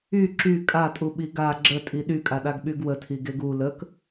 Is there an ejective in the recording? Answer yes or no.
yes